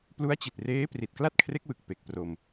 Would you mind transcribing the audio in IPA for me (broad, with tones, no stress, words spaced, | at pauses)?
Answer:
plu˦˥a̯t͡ɕi˨˩t̚ reː˦˥ pri˨˩t̚kla˥˩t̚kʰre˦˥k̚wɯ˨˩k̚ pe˨˩k̚pro˧m